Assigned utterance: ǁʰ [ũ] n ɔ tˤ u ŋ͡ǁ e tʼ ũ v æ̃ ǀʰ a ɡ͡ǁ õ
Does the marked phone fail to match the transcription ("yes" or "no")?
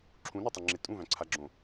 no